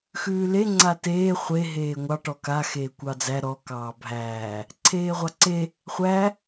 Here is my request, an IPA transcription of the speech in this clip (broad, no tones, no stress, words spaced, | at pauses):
xʉːle ŋ͡ǀateː χʷe ɦeːŋʷɑ ʈɔka xeːkʷɑd͡zæ ɾɔ kɑːbʱæː | ǀʰeːʁʷɑǀe | χʷæ